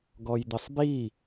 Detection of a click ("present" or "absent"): absent